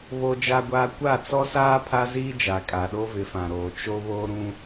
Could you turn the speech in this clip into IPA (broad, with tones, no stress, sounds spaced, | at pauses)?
β o˦ d͡ʒ a˦ ɡʷ aː˦ kʷ a˦˨ t͡s ɔ˦ s aː˦ pʰ a˦ z iː˦ d͡ʒ a˨ kʼ a˨ ɗ o˦ v ɪ˨˦ f ã˨ ɾ oː˨ t͡ʃ o˦ β oː˦ ɾ ũ˦